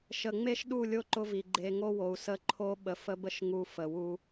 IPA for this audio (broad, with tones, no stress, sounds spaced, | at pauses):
ʃ ə˨ ŋ͡m e˦ ʃ ɗ u˦˨ lʲ o˦ ǃ ʊ˦ v i˨ ɡ͡ǃ e˨ ŋ o˦ w o˨ u̯ s ə˦˨ ǃʰ o˦ ɓ ə˨ f ə˦ b ə˦ ʃ ŋ u˦ f ə˨ w u˦